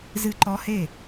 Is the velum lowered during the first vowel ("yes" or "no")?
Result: no